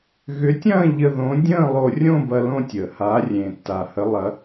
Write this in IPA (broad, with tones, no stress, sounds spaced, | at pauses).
ɣ ʏ˨˥ tʲ ɐ̃ː˥˧ ʎ ə˧ ð õ˨˥ dʲ ə̃ː˥˧ lˠ o˧ rʲ õ˥˧ b ɐ˧ l õ˥˧ tʲ əː˩ h aː˨˥ rʲ ẽː˩ tː aː˩ h ə˨˥ lˠ ɐ˨˥